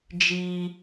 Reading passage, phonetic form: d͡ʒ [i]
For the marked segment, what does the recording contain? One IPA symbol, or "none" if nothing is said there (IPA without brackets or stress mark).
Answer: i